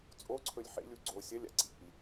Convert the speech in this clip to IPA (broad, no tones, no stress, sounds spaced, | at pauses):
t͡sʼ o ǀʰ ɵ lʲ ħ ḛ lʲ u ɡ͡ǀ o sʲ ɐ lʲ a̰ ǀ ḭ lʲ